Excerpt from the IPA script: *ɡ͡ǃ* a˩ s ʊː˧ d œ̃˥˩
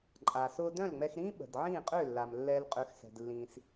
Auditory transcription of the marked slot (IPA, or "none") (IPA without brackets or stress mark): ǃʼ